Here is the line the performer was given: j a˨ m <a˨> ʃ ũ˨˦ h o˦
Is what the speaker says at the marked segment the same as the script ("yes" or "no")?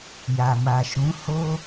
yes